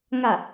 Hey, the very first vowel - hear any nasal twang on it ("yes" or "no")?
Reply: no